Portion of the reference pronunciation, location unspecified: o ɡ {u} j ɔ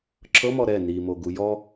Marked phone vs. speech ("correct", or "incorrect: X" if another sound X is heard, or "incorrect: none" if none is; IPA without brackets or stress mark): correct